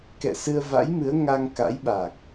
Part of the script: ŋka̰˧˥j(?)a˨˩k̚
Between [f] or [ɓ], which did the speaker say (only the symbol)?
ɓ